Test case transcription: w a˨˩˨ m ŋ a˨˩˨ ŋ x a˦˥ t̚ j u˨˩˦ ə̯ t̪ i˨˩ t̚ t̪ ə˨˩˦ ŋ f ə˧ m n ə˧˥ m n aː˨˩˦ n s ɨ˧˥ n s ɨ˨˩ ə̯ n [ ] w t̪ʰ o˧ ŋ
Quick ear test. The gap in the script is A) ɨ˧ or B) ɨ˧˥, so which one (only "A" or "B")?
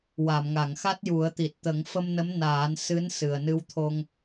A